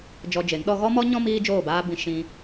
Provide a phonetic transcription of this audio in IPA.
d͡ʒɔ˧d͡ʒe˨˦ŋɗɔ˦ ɣɔ˦mɔ˦ɲɔ̃˦ miː˦d͡ʒoː˦˨baː˦ bĩ˧ ʃĩ˧

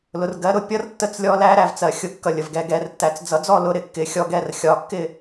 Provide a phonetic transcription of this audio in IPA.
lʊ˩rɡɜ˨˦ ɾʊ˨˦pʲʌ˨˦rtːə˨˦t͡s lʲɔ˨˦læ˨˦ɾæ˩vt͡sɜ˩ xʲʊ˨˦kːʌ˩ lʲə˩vɡɛ˥˨ɡɛ˨˦rtːæ˨˦t͡s d͡zʌ˨˦d͡zɔ˥˨lʊ˨˦ ɾɪ˩ kːɪ˨˦xʲɔ˨˦ɡɛ˥˨r xʲɒ˨˦kːɪ˥˨

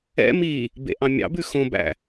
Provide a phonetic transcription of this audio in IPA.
ɛ̰ mi | bḛʔɑ̃mʲɑ̰bʉ xõbæ̰

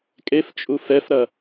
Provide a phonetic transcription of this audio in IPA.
kʼeft͡ʃʼu fɛfɾɐ

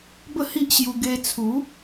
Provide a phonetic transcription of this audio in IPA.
bə˥˧hi˦ʔɕju˧ ɡe˧t͡sʰu˨˦

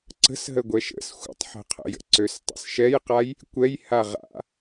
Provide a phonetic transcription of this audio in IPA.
ǀə̤sɦə ɡʷɛʃə̰s xʷə̰tˤħɛ̤qʰə̰jə̰ ǀøstˤə̰sʃɛjqaj | kʷɛjha ʁa̰

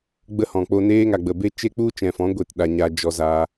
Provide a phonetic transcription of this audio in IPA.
ɡ͡bə˦hɔ̃˨ k͡po˧neː˦ŋa˨ ɡ͡bə˨be˦ t͡ʃe˦k͡pu˦t͡ʃɛ̃˨fɔ̃˨˦ ɡʷe˨t ɗa˧ɲa˦ d͡ʒɔ˧za˧

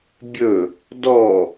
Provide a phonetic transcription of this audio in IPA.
bʲɵ | dɔ

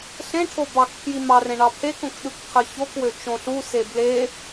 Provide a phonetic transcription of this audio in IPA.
ɬẽʈʰo bɑkpʰji mɑrẽ ɳɑpʰekõk ɗɯkqʰɯçokwø t͡ʃõɬuse ble

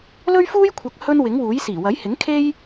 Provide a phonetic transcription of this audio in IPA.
lɵ˥ɥfuː˥jkʷʰɐ˨˥k̚ hɵ˥nwɪ˨˥ŋwuː˨˥j siː˨˩wɐ˨˥jhɪ˨˥ŋkʰe˥j

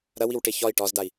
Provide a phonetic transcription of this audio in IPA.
ɾɐwiwʈe çɒi̯ ʈɒzdai̯

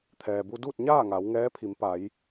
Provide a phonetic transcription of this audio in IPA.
t̪ʰɛː˩bu˧duː˥˨t̚ɲaː˥˨ ŋa˩˧wŋɛː˧˥pʰi˩˧m pa˩˧j

